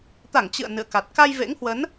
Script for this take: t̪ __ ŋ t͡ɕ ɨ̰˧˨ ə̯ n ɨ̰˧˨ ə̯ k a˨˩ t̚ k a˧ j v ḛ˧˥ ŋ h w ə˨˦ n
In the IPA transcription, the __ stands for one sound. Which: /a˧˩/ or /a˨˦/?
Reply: a˧˩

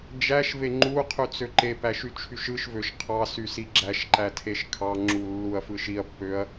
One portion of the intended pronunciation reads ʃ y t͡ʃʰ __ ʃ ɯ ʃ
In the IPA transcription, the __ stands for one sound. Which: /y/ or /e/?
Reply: y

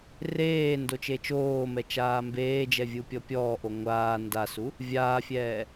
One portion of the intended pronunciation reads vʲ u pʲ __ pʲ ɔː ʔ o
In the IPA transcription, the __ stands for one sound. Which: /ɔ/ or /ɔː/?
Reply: ɔ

